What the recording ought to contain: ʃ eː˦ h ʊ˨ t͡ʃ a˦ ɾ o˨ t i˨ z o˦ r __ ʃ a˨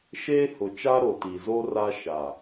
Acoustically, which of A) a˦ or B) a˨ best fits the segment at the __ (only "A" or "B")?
A